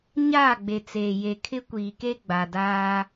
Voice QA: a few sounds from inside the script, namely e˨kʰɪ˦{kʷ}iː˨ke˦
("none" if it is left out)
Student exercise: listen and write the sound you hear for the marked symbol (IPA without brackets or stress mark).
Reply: kʷ